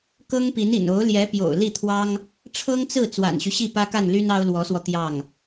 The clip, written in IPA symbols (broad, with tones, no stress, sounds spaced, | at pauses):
k ɤ˥ ŋ p i˧˥ n ḭ˨˩ n o˧˥ ʊ̯ l j ɛ˧˥ p j o̰˨˩ ʊ̯ l i˥˩ t̪ʰ w ɑ˥ ŋ | ʈ͡ʂʰ ɤ˥ ŋ t͡s ɹ̩˥˩ t͡s w a̰˨˩ n ɕ y˦ ɕ i˥˩ p ä˥ k a˥˩ n l y˥ n ɑ˥ ʊ̯ l w ɔ˧˥ s w ɔ˧ t̪ j ɑ˥˩ ŋ